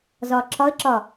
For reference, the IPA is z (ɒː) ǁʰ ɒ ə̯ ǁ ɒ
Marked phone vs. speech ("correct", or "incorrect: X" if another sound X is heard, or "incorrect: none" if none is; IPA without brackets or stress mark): correct